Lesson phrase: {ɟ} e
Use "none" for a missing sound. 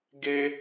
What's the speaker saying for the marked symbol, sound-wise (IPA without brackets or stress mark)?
ɡ